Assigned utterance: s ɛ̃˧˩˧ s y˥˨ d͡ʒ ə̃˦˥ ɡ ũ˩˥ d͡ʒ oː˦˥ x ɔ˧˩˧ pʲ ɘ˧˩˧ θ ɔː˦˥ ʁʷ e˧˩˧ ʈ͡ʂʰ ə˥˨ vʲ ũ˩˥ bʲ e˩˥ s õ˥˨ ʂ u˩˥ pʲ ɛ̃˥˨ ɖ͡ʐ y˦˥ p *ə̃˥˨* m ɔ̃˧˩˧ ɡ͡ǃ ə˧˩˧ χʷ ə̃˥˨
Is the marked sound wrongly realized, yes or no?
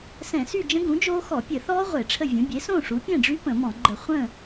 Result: yes